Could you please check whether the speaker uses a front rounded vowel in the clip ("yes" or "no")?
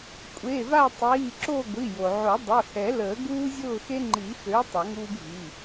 yes